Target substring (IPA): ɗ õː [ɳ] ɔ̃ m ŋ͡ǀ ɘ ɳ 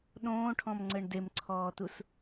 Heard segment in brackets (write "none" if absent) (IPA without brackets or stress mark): ʈʰ